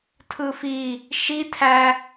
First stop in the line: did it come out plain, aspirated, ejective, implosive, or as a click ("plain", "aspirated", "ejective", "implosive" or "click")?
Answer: aspirated